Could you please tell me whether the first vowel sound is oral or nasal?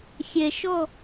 oral